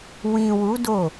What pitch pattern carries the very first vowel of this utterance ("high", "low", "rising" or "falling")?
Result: low